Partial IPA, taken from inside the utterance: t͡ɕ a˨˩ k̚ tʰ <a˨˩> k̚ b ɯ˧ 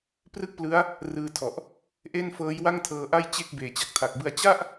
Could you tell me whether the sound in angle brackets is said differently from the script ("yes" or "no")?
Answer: no